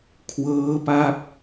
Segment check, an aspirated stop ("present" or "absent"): present